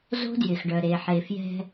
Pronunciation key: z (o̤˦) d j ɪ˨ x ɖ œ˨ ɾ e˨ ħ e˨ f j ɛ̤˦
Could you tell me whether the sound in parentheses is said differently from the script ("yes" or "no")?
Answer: no